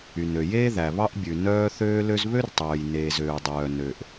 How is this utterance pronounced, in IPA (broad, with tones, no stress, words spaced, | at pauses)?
y˩nø˩jeː˥ ðæ˩βɑ˥ʔbʲʉ˩ nœː˥ θøː˥lø˥z βø˥rtˤœː˩jneː˩z øː˩dˤœː˩ nø˩ʔ